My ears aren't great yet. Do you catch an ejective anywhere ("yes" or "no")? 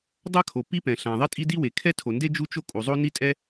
yes